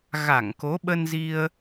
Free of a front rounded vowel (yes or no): yes